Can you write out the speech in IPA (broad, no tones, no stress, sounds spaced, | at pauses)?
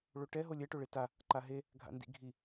ɭ o ʈ ɛ ɦ o lʲ ɛ ʈ o ɭ e t a | ǃ a ɦ e | ɡʱ a̰ n d ḭ ɡʱ i